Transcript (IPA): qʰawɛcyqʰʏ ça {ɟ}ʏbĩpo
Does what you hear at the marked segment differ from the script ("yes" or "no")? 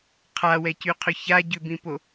no